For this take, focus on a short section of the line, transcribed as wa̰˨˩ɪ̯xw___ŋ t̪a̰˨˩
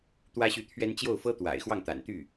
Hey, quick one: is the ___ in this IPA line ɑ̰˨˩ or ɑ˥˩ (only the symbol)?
ɑ˥˩